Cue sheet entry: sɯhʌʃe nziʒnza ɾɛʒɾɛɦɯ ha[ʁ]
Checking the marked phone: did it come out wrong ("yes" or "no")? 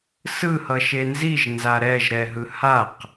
yes